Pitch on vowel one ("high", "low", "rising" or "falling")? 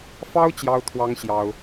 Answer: high